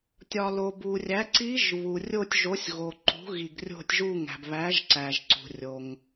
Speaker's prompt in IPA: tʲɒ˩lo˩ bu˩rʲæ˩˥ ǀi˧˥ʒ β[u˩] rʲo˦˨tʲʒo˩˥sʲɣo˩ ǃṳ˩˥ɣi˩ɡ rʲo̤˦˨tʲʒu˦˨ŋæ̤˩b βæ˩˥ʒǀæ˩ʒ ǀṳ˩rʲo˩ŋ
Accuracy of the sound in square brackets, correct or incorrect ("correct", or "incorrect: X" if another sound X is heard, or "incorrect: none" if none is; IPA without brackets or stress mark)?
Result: correct